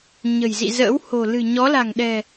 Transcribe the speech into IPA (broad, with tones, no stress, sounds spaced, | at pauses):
ɲ ə̤˨˩ j z ḭ˧˨ z ə̰ː˧˥ w h o̤˨˩ l ɨ̤˨˩ ɲ ɔ˨˦ l a̤˨˩ ŋ ɗ ɛ̤˨˩